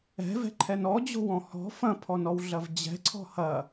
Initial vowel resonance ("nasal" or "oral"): oral